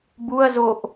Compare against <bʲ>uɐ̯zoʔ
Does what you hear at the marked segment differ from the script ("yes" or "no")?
yes